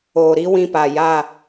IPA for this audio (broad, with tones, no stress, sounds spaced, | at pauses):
oː˨ ɾ i˦ w ĩ˦ p a˨ j a˦˨